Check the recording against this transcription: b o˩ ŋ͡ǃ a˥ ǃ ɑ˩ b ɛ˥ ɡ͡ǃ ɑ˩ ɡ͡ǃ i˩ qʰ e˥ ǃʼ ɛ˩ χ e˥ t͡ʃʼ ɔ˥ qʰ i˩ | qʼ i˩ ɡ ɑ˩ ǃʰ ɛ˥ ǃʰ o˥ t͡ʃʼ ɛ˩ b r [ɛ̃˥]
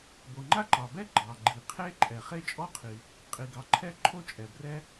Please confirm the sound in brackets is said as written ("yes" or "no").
no